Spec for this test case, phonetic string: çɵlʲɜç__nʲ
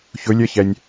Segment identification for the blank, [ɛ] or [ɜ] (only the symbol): ɛ